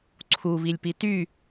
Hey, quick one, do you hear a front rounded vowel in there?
yes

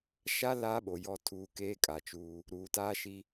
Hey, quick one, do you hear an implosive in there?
yes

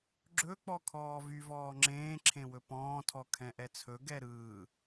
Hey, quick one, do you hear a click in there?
yes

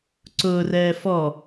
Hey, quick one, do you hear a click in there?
yes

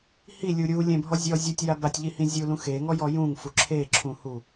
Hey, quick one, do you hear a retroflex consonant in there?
no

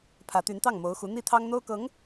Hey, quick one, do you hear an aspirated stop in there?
yes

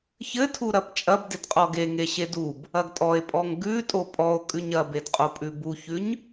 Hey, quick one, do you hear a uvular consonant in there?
yes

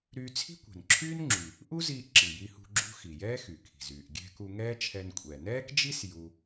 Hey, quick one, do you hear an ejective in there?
yes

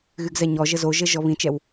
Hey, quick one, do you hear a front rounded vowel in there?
yes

